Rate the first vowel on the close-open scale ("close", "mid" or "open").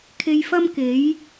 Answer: mid